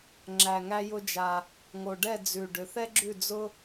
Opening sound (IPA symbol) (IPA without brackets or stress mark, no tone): ŋ͡ǁ